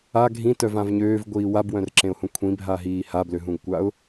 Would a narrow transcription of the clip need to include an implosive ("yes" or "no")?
no